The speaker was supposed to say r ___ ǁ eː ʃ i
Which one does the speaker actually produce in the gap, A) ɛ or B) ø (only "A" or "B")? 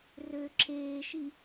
B